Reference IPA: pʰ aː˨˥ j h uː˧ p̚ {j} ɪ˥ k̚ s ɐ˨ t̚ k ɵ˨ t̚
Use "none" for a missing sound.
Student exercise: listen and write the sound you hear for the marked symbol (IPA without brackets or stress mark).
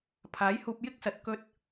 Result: j